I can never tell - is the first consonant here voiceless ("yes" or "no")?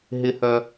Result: no